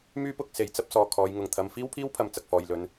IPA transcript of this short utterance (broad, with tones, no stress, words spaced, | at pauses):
myː˥pʊ˧k̚se˨j t͡sɐ˥p̚ sɔː˧ kʰɔː˨˧jŋʊ˨ŋt̪ʰɐ˨˧m fiː˥wpʰiː˥wpʰɐ˨m t͡sɐ˨k̚fɔː˨jlɵ˨˥n